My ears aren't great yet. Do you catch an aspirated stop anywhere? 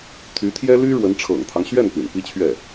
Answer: yes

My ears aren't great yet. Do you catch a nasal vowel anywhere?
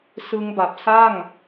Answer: no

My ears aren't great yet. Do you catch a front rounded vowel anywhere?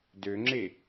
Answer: yes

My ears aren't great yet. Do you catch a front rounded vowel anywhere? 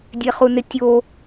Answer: no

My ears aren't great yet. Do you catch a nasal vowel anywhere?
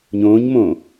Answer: yes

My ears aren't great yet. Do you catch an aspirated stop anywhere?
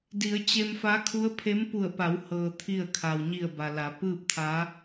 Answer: yes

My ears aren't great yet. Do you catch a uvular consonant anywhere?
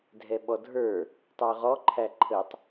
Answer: yes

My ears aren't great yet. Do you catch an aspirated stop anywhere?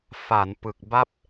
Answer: no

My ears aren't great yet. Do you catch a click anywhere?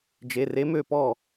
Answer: no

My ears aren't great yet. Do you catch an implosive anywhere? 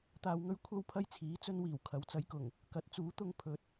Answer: no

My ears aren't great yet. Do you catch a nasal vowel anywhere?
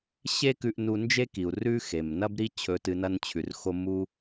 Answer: no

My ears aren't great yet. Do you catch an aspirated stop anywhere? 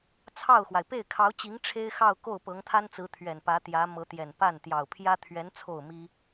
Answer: yes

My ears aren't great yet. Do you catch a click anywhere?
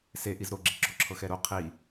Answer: yes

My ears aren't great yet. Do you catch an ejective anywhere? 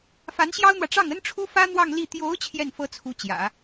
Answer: no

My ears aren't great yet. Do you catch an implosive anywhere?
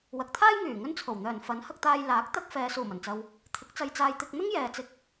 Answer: no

